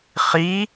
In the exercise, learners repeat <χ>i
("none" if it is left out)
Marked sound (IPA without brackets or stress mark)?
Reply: χ